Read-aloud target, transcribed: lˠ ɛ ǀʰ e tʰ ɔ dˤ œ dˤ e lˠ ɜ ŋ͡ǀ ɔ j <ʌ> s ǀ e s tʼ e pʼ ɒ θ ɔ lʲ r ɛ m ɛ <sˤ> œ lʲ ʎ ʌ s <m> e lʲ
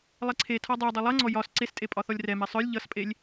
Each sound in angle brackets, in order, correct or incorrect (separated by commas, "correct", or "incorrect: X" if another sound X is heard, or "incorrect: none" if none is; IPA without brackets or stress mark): incorrect: ɒ, correct, incorrect: pʼ